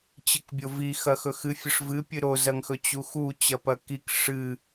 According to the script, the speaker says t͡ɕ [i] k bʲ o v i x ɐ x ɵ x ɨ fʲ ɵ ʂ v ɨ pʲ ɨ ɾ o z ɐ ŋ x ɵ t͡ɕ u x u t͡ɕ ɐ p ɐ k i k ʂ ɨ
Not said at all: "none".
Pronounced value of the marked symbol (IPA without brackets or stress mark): ɨ